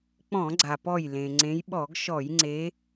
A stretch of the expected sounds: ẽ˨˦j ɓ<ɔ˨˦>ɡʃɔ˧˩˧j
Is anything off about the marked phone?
yes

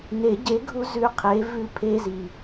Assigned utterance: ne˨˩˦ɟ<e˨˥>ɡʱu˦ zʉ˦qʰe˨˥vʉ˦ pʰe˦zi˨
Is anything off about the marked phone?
no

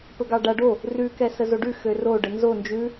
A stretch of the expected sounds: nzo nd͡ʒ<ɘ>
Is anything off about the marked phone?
yes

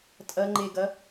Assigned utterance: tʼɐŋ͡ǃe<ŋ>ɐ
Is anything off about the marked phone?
yes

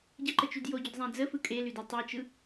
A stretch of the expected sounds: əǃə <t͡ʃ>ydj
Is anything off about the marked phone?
no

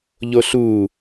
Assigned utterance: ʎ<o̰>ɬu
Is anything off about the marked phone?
yes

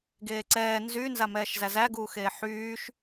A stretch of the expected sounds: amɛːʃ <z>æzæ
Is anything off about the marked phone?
no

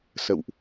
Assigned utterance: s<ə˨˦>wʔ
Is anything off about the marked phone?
yes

